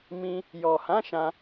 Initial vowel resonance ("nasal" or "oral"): nasal